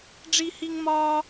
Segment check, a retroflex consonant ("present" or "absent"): present